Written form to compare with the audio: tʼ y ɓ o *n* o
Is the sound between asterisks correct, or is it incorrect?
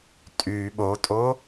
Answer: incorrect